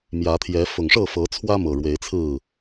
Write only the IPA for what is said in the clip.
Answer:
m j ä˨˦ t̪ʰ j ɛ˨˦ f ʊ˨˩ ŋ ʂ ɤ˥˨ f ɤ˨˦ t͡sʰ w ä˦ m ɤ˨˩ ɻ w e˨˦ ɪ̯ t͡sʰ ɹ̩˥˨

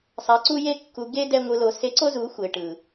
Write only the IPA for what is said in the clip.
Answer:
sˤ a˨ ǀ u˧ j e˧ kː u˨ ɡ e˧ d ɛ˧ ŋʷ ɯ˨ l o˨ s e˨˦ ǀ o˦ z u˨˦ xʷ e˨ ʈ ɯ˨

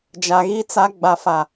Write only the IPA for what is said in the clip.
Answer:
d͡ʒ a˨ ɣ i˦ t͡s a˦ ɡ͡b a˨ f a˨

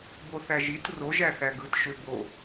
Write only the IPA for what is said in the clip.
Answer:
b o θ æ ʒ i t r o ʒ æ θ æ ɡ ɯ t ʃ ø b o

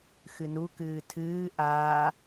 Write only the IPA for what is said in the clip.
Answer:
x ɨ n u k ɨː tʰ ɨː ʔ aː

